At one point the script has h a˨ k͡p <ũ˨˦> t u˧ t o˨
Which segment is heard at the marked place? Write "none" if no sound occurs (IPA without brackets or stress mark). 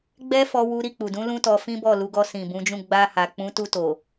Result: ũ˨˦